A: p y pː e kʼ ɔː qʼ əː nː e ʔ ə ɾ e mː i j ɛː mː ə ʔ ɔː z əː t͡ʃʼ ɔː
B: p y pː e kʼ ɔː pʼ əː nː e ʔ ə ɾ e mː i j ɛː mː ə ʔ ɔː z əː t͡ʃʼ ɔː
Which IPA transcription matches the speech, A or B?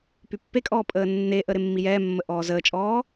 B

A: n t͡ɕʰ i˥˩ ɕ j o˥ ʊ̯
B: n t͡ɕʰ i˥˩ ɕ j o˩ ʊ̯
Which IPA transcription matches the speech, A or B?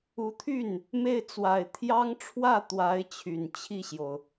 B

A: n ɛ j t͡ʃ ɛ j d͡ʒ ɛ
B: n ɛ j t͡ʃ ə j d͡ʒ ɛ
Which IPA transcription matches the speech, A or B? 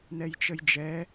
B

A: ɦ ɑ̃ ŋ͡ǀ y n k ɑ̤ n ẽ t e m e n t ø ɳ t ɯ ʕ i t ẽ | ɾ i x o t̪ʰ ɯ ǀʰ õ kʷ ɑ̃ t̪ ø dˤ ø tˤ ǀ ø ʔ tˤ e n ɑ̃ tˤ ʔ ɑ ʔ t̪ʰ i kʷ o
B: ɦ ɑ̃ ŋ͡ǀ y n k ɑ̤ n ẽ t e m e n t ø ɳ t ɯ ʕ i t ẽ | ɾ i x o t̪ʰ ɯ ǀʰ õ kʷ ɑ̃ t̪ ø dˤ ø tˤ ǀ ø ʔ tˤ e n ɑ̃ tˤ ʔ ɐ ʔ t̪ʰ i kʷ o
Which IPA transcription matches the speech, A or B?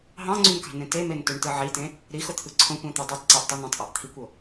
A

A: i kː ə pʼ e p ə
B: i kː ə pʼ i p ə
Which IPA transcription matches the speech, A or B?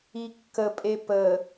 A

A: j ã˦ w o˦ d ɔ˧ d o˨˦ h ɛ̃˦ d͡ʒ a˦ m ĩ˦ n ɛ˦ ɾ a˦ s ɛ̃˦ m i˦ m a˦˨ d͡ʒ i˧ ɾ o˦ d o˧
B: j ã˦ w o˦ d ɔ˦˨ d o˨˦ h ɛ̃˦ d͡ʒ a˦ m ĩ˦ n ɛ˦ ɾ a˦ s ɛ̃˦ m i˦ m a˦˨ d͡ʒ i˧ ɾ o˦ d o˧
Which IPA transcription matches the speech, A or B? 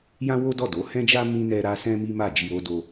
B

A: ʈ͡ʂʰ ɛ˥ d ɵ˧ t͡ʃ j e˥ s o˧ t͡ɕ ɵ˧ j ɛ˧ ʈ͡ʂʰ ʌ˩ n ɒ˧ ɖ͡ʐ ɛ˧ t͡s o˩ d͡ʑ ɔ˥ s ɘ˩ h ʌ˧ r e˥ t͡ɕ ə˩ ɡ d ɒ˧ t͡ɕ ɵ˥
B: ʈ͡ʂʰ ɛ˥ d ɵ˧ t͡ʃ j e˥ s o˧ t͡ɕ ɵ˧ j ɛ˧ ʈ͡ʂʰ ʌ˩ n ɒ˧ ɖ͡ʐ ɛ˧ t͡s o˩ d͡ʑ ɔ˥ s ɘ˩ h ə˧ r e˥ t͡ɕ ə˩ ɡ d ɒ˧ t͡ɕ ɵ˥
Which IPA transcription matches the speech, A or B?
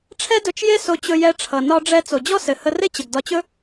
B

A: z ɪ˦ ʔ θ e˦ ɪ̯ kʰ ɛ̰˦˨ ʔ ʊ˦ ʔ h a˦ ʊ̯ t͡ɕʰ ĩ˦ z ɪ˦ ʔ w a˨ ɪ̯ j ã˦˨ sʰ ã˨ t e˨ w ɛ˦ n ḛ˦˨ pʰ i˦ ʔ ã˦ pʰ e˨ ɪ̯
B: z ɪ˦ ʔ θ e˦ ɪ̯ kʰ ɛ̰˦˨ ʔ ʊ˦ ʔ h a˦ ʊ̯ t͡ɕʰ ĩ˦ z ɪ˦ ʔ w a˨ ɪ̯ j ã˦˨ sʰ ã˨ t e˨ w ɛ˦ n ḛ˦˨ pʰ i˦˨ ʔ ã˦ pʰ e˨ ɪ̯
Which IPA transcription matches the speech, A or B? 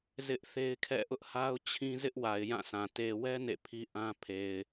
A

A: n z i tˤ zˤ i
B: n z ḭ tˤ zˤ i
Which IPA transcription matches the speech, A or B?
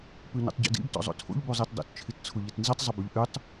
A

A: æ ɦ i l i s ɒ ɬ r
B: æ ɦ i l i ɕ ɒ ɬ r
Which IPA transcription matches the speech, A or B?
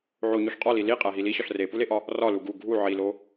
B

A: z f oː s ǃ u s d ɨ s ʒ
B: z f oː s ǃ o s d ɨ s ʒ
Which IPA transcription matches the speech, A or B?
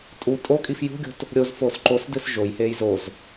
B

